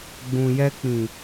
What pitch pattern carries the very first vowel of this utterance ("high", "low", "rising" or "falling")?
low